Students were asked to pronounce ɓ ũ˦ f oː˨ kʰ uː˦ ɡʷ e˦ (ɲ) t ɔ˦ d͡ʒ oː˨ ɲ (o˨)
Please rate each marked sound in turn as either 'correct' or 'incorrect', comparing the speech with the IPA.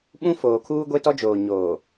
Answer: incorrect, incorrect

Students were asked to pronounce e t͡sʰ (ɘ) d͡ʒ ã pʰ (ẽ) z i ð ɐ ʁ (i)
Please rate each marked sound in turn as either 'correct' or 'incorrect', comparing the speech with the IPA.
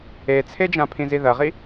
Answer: incorrect, incorrect, correct

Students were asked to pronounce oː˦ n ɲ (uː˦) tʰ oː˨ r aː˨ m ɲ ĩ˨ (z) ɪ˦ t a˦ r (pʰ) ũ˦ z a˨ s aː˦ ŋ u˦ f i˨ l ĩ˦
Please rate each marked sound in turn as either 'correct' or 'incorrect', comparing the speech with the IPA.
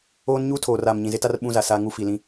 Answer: correct, correct, incorrect

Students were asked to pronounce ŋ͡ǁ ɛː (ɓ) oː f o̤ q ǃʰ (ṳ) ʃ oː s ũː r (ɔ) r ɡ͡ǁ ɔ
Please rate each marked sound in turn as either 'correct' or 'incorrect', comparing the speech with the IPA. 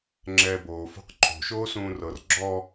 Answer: incorrect, incorrect, incorrect

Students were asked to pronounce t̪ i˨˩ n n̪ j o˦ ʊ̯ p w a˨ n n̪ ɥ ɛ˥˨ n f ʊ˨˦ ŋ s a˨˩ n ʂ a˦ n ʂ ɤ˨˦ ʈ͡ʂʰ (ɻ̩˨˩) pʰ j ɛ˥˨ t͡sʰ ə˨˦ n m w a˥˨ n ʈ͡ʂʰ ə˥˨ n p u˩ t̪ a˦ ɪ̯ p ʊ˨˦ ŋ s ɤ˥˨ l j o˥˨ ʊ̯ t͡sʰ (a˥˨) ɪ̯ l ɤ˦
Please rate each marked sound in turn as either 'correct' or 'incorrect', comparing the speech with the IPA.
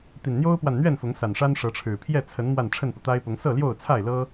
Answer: correct, correct

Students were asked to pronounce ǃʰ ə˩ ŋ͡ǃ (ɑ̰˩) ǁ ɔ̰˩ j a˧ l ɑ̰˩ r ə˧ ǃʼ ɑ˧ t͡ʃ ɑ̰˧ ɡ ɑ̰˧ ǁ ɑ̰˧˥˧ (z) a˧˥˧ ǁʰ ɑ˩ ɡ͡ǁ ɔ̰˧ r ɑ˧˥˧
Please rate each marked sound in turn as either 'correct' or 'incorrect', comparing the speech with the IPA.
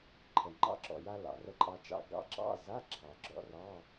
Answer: incorrect, correct

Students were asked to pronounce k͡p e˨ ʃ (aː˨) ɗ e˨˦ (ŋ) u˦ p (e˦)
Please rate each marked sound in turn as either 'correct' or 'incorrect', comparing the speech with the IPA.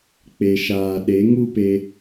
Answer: correct, correct, incorrect

